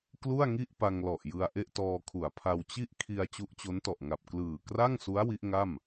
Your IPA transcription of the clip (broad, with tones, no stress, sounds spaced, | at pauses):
k l u˥˩ a̯ ŋ i˥˩ ʔ p a˧ ŋ l ɔ˨˩ ʔ j ɯ˧ a̯ ʔ e˥˩ ʔ t ɔː˧ kʰ u˩˦ a̯ pʰ a˧ w t͡ɕ i˥˩ ʔ kʰ i˧ a̯ t͡ɕ u˦˥ ʔ t͡ɕ o˦˥ n t ɔ˨˩ ʔ ŋ a˨˩ p̚ k l ɯː˨˩ k r a˥˩ ŋ s u˦˥ a̯ w i˦˥ ʔ ŋ a˥˩ m